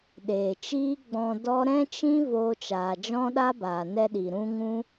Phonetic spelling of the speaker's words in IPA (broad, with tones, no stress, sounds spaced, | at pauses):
ɗ eː˨ t͡ʃ iː˦ ɡ͡b ɔ̃˧ d ɔ˦ ɾ ɛ̃˦ t͡ʃ ĩ˦ v oː˧ t͡ʃ aː˨ d͡ʒ ɔ̃˦ ɗ a˦ b aː˨ n ɛ˧ ɗ i˨ ɾ ũ˦ ŋ ũ˦